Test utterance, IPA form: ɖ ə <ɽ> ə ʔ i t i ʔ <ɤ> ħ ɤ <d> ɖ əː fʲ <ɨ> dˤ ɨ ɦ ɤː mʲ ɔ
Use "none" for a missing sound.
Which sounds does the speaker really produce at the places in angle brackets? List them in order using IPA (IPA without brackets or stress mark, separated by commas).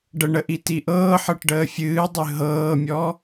ɳ, ɤː, ʈ, ɨː